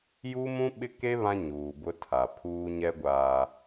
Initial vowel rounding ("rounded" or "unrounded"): rounded